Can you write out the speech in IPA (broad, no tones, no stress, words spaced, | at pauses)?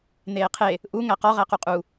n̪eːqʰe | ʔu ŋæqɒ ʁæquqʼu